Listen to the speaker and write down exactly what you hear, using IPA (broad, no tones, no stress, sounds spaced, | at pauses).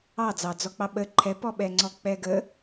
ɑ d͡z ɑ d͡z ɔ k͡p ɑ ɓ ə ǃʰ ɛ p ɔ ɓ ɛ ŋ͡ǀ ɔ k͡p ɛ ɡ ə